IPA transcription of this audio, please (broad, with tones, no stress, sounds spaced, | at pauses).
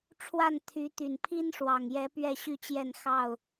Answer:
ʈ͡ʂʰ w a˥˨ n t̪ʰ y˨˦ t̪ y˨˩ n pʰ i˦ n ʂ w ɑ˨˩ ŋ j ɛ˨˦ p ɥ ɛ˥˨ ɕ y˥˨ t͡ɕ j ɛ˥˨ n x ɑ˥˨ ʊ̯